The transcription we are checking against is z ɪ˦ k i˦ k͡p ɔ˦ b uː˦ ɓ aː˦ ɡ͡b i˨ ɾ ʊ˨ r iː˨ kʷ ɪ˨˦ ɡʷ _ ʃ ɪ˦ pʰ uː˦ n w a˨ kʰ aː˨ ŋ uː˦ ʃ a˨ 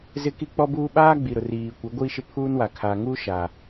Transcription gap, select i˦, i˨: i˦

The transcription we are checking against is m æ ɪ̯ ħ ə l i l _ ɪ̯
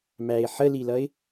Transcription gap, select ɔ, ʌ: ʌ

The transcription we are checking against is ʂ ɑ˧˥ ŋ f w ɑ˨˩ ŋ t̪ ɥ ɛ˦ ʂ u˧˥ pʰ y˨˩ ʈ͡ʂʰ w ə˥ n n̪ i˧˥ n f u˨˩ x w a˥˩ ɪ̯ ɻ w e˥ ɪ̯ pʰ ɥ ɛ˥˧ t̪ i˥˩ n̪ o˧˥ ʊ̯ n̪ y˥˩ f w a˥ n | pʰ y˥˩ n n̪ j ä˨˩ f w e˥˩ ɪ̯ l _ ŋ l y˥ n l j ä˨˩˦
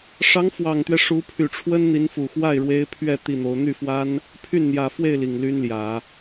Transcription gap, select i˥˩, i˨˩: i˨˩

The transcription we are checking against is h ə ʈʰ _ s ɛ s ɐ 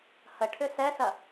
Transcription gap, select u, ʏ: ʏ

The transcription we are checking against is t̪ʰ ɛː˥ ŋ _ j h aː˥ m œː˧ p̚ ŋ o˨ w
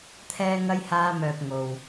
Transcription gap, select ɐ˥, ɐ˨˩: ɐ˥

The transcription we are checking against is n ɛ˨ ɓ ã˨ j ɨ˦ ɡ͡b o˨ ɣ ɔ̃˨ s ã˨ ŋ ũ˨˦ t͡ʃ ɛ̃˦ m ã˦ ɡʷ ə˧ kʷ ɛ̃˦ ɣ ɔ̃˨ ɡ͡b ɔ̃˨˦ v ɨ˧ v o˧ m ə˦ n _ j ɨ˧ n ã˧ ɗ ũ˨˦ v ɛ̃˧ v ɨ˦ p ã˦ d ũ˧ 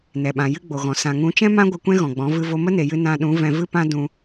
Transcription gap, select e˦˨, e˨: e˨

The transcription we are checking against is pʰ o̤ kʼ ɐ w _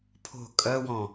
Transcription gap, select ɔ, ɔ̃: ɔ̃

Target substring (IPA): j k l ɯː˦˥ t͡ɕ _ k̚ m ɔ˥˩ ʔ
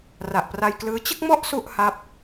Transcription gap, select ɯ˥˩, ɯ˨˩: ɯ˥˩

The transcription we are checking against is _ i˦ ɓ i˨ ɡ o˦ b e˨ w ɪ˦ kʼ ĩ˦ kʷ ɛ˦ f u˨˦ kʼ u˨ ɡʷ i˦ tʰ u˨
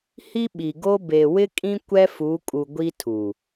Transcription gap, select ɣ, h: h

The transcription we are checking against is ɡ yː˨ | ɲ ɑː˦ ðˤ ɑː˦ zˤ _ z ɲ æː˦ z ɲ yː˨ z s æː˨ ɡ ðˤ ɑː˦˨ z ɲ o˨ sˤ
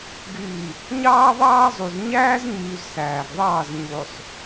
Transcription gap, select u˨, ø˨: u˨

